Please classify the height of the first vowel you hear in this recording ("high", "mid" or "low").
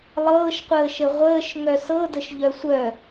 mid